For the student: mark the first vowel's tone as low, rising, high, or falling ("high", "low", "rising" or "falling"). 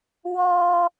high